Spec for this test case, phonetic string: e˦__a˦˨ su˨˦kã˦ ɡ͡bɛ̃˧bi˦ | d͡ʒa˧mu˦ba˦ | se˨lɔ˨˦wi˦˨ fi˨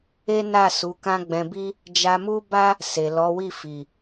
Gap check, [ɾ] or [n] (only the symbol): n